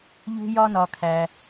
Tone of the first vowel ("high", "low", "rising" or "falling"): high